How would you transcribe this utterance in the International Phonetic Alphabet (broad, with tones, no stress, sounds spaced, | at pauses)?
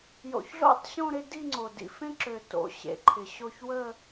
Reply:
j o̰˨˩ ç ɮ o̰˥˧ tˤ ɕ õ˥˧ ɾ ɪ˥˧ d i˥˧ ŋ͡ǀ o˨˩ d ḭ˨˩ f ẽ˥˧ ǁ ø˨˩ t o̰˨˩ ɕ ḛ˨˩ ǃʰ ɪ˨˩ ɕ o˥˧ ç w ə˥˧